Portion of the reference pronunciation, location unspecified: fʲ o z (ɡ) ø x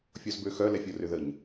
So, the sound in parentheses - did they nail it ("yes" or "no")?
no